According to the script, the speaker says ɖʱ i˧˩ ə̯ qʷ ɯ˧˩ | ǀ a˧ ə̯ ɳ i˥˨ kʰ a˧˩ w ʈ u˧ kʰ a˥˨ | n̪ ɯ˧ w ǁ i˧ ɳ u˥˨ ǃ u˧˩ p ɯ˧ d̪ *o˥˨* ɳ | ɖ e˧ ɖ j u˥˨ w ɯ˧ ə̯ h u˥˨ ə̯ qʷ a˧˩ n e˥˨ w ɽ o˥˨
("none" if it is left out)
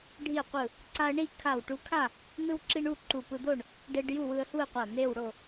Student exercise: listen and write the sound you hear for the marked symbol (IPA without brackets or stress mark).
o˥˨